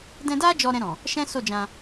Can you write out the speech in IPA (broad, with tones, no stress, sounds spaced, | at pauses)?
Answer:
d ɛ̃˧ d a˦ d͡ʒ ɔ˧ ɾ ɛ̃˧ ɾ ɔ̃˨ | ʃ ɛ̃˦ s o˦˨ d͡ʒ ã˧